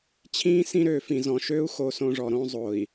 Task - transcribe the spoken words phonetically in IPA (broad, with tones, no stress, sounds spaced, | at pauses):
t͡ɕʰ ĩː˦ s ĩ˦ ɾ øː˨ f ĩ˨ z ɔ̃˨ ʃ øː˦ u̯ x o˦ s õ˦ ʐ ɔ˨ ɾ õ˦ zˤ o˨ i̯